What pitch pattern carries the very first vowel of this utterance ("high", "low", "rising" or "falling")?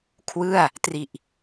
falling